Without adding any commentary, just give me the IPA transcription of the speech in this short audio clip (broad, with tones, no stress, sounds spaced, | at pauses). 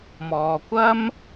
m ɔː˨ kʷ ɐ˥ m